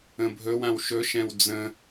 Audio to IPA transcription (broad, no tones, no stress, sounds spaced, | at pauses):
ə̃ bʱ ɵ w ã w ʃ ɵ ʃ ɛ̃ w d͡z ə̃